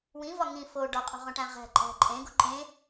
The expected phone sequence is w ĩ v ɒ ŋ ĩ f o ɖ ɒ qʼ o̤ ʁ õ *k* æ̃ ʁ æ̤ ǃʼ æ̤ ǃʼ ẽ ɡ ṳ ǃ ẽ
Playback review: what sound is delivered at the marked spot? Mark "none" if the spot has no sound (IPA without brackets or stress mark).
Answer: ʈ